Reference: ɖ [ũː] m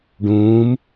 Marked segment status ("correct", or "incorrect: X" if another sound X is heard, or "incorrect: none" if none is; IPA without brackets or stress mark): correct